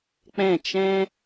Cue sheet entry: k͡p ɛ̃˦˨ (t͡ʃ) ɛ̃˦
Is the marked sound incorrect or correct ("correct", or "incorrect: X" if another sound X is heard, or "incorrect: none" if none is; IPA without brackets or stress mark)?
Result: correct